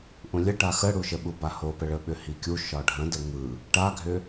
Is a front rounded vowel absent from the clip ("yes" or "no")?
no